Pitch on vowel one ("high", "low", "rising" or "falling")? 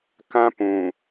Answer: high